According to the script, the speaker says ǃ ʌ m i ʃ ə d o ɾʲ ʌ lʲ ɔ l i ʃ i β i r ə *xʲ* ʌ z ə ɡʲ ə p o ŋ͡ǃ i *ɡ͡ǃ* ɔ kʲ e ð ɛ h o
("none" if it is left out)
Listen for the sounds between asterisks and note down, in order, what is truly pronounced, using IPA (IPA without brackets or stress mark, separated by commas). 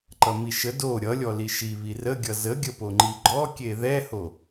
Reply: ɡʲ, ɡ͡ǃ